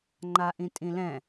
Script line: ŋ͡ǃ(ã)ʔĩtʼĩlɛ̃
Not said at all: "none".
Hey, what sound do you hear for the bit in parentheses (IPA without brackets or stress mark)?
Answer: a